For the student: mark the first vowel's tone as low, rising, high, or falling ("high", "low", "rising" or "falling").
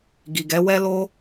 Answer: low